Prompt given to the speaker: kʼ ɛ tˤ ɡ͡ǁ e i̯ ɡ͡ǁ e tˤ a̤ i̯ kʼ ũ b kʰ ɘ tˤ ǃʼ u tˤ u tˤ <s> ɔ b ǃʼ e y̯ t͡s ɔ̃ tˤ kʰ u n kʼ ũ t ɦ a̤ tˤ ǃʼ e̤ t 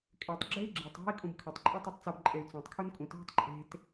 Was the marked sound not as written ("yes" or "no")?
yes